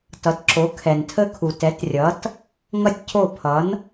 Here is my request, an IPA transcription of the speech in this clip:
tʌ˩˥tǁo˩˥ kʰɛ˩ntʰə˥ kʰu˩tɛ˩˥trʲʌ˩˥t | ŋʌ˥tʲcʰo˥˩ pʰʌ˩˥n

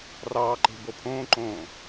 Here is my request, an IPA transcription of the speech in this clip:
rɑːǃe̤ bopʰõːǃõː

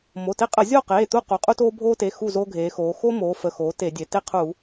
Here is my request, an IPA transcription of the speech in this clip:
mo˩˧˩te˦qʼə˧˩˧ zʲo˥˨qeː˩˧˩ t̪u˥˨qu˩˧qʼu˦toː˦ bʱoː˦te˩˧˩ xu˥˨ zo˦ɡʱeː˩˧xoː˩˧ xo˦moː˩˧ fə˩˧˩xoː˩˧ te˧˩˧dʲe˩˧ te˥˨qʰu˧˩˧

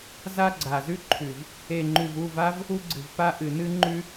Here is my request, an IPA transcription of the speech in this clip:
za˦ɡ͡ǀa˨zʉ˦ǃʰʉ˨v | e˨ŋ͡ǃʉ˨vu˦˨v a˦v | u˦ɡ͡ǀɨ˨vpa˦ ʔɨ˨ nɨ˦ŋ͡ǃʉ˦

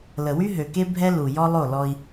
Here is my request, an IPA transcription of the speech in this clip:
lə˨wy˦ɦø˨ke˦ bʱɛ˦ lu˨ jɔ˦lˠo˦˨lɔ˦i̯

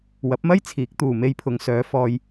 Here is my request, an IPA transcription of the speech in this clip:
wɐ˨˥p̚mɐ˥j t͡sʰiː˨˥k̚t̪uː˨ me˧jpʰʊ˨˧ŋsœː˨˧ fɔː˧j

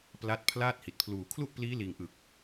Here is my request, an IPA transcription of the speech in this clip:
pla˦˥t̚ pʰlaː˥˩t̚hi˨˩t̚ pʰluː˨˩kʰlu˥˩ʔpliː˦˥liː˨˩ŋ ʔɯ˨˩k̚

